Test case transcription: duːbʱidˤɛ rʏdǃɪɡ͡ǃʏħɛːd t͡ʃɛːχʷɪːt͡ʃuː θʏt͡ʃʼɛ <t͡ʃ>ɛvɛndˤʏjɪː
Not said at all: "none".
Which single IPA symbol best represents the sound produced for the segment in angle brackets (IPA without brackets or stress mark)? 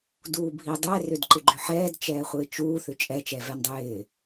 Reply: t͡ʃ